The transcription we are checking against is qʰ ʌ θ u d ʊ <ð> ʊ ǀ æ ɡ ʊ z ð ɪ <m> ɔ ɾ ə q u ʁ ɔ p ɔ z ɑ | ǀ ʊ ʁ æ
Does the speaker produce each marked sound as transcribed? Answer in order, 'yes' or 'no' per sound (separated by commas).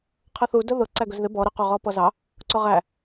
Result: yes, no